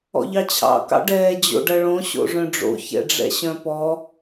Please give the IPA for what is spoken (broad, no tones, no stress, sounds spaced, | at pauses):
ɔ̰ ʎ ɑ t͡ɕʰ ɑ̰ k ɑ̰ ɖ ɛː d͡ʑ o̰ ɖ ɐ ɭ õ ɕ o̰ ʐ œ̃ ɖ͡ʐ o̰ ç ɛ̰ ɖ͡ʐ ɛ̰ ɕ œ̃ p ɔ